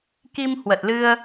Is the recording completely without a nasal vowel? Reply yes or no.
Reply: yes